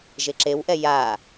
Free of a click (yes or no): no